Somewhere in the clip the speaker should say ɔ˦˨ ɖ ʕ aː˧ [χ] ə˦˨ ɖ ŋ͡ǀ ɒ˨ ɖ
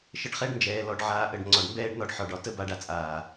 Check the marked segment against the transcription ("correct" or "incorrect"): incorrect